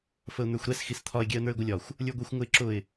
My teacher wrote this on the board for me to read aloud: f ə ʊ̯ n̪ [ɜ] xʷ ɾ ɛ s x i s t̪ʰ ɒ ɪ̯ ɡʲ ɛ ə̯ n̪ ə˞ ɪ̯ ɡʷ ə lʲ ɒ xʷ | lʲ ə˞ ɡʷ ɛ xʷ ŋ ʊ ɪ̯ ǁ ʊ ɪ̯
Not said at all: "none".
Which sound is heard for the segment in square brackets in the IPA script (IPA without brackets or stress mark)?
ə˞